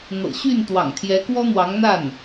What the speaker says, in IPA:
n̪ ɤ̰˨˩ ɕ y˥˩ n t̪ w ɑ̰˨˩ ŋ t̪ʰ j ɛ˧˥ k w ɔ˥ n̪ w ɑ˧˥ ŋ n̪ a˥˩ n

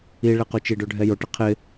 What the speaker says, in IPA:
i ɭ e q o t͡ʃ i ɖ o ɖʱ ɛ j o ʈ ɪ qʰ ɪ

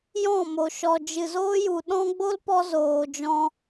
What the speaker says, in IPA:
j ɔ̃˦˨ m o˨ ʃ ɔ˨ d͡ʒ ɨ˨ z oː˦ j u˨ ɗ ɔ̃˦ ɡ͡b o˦ l p ɔ˧ z oː˨ d͡ʒ ɔ̃˧

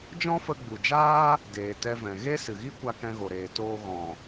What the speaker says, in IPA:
d͡ʒ ɔ̃˦ f ə˧ ɡ͡b u˨ d͡ʒ aː˦ | d eː˨ t ɛ˧ v ɛ̃˨ ɣ e˦ s ɨ˨ ɣ i˦ kʷ a˧ k ɛ̃˧ ɣ o˨ ɾ eː˨ t oː˧ ɣ ɔ̃˨

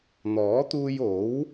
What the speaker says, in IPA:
n̪ ɔː˨˥ t̪ uː˧ j o˨˥ w

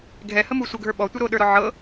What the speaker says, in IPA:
ɡʱ ɛ h ə m u sʷ ə ɡʱ ə˞ ɓ ɔ tʷ ə ɾ o ɗ ə˞ ɾ ɔ ʕ ɤ

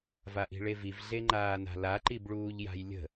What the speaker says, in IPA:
v a ʔ i̤ ɭ e v i v ɮ e ŋ͡ǃ aː n a̤ l a ǃ i b ɭ uː ʎ j a̤ j lʲ ə̤

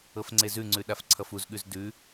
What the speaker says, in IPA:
ɤ f ŋ͡ǀ e z ʉ ŋ͡ǀ ʉ ɗ a f ǀʰ ʌ f u z ɠ ʉ z d ʉ

